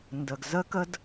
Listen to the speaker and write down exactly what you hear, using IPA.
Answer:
n d ə˨ ɡ z ə˦ k ə˦ d

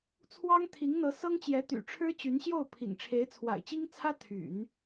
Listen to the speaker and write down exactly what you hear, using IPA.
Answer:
t͡sʰ w ɑ˥ ŋ t̪ʰ i˧˥ ŋ n̪ ɤ˧˥ s ɤ˥ ŋ t͡ɕ j ɛ˧˥ t̪ y̰˨˩ ʈ͡ʂʰ ɻ̩˥ t͡ɕ y˧˥ n ɕ j o˥˩ ʊ̯ pʰ ḭ˨˩ ŋ ʈ͡ʂʰ e˧˥ ɪ̯ t͡sʰ w a̰˨˩ ɪ̯ t͡ɕ i˥ ŋ t͡sʰ ä˥ t̪ʰ y̰˨˩˦ n

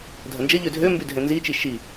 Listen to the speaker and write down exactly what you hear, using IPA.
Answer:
dʱ ɐ n d͡ʒ ɐ ʎ ø dʱ ø m b y dʱ ɛ̃ n z i t͡ʃ i ʃ i

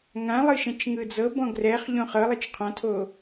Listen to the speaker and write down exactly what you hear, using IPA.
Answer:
ŋ ã lˠ ɯ ʃ ɛ̃ t͡ʃ ŋ ɯ d͡z ɤ b ɔ̃ ɡ r ɛ χ ʎ õ χ ɤ lˠ ɯ t͡ʃ qʰ ɔ̃ tʰ o

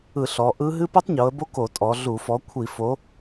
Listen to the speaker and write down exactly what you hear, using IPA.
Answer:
ɯ˧˩˧ ɬ ɔ˩˧ ʔ ɯ˦˥ ɦ ɨ˦˥ p ɨ˦˥ tˤ ɲ o˩˧ ə̯ b o˦˥ k o˧˩˧ tʼ ɔ˩˧ ɮ u˧˩˧ f ɔ˨˥ kʷʰ i˧˩˧ f o˨˥

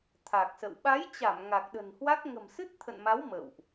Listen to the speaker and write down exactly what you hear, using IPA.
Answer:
t̪ʰ a˨˩ k̚ s ə̰˧˨ w ɓ a˨˦ j t͡ɕ a˧˩ m ŋ a˨˩ k̚ ɗ ə̤˨˩ n h w a˦˥ k̚ ŋ ə̤˨˩ m s ɨ˦˥ t̚ t̪ʰ ə̰˧˨ n m a˨˦ w m ə̰˧˨ w ʔ

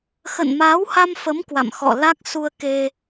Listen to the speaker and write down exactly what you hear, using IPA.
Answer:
x ə̰˧˨ n m aː˨˦ w h a˧ m f ə˨˦ m k w a̰˧˨ m x ɔ̰˧˨ l a˦˥ k̚ s u˧ ə̯ k e˧

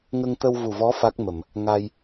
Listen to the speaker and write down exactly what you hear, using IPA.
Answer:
ŋ ə˧ ŋ t̪ ə˧ w v u˨˩ v ɔ˧˥ f a˦˥ k̚ m ə˨˩˨ m | ŋ a˧ j

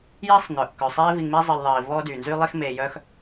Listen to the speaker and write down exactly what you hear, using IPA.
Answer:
j iː˥ sˤ n œ˩ ʔ k œ˩ sˤ eː˥ v i˧ ŋ m i˥ zˤ e˧ lʲ ðˤ iː˩ v ɔː˥ d yː˩ n z yː˥ lˠ i˥ x m eː˧ j œ˥ x

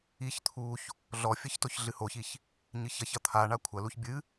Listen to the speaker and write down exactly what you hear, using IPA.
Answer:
i ç t̪ʰ u ç | ɮ ɔ fʲ ɐ ç t o ç ɮ ɨ h o ç i ç | ɲ ɨ ç ɐ ç ɐ t̪ʰ a ɳ a kʷʰ ɐ l u ç bʲ ɨ

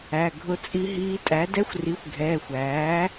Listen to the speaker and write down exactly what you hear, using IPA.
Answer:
æ˩˧˩ ɡʱ ʊ˦˥ t͡sʼ i˦˥ ɦ iː˦˥ tʼ æ˩˥ d ɛ˦˥ xʷ r i˩˥ xʷ ɡʱ ɛː˩˧˩ xʷ æː˩˥

